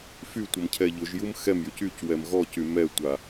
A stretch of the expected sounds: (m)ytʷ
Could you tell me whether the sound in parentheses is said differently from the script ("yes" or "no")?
yes